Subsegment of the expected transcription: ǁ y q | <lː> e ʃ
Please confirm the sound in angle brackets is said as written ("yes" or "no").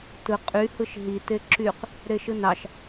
no